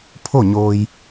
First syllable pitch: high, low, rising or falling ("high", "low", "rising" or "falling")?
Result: falling